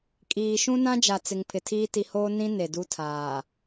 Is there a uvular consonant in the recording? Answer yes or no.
no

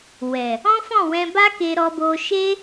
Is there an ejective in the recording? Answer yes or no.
no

